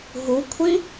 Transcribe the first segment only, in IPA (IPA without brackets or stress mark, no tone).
ɦ